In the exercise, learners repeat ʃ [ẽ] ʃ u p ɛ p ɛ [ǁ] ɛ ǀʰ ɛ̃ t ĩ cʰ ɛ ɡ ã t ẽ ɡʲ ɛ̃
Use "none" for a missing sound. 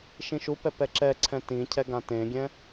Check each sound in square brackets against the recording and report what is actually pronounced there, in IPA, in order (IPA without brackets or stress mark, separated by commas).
ĩ, ǁ